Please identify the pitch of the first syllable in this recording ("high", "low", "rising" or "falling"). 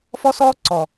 high